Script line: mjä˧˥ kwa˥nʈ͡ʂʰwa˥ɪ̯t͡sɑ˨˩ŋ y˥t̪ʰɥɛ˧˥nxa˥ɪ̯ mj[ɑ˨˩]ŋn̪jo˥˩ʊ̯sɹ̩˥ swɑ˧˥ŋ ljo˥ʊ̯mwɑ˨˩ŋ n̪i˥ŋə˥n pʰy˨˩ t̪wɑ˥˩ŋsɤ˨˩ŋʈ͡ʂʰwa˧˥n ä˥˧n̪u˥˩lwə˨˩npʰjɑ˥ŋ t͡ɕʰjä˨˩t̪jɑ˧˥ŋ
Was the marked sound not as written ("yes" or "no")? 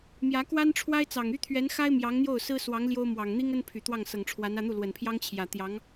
yes